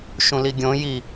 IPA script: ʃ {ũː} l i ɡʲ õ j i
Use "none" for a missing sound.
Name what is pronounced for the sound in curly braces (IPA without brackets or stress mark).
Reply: ũ